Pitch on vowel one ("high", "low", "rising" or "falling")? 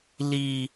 high